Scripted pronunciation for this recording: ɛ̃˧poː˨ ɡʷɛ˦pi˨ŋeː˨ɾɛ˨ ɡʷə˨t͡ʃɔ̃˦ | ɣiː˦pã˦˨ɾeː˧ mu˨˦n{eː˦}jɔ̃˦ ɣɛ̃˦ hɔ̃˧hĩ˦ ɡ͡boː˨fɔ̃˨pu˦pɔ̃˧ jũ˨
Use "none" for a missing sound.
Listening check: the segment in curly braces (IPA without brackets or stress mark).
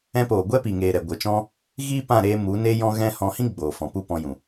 e˦